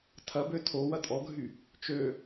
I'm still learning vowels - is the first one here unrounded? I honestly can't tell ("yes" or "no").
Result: yes